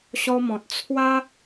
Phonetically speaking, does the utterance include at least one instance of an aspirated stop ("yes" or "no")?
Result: yes